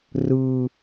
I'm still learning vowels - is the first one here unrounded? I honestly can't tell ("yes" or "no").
yes